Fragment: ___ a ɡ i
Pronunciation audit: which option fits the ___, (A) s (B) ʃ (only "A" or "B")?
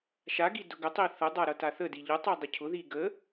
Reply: B